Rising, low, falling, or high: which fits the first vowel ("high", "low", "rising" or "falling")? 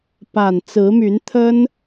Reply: low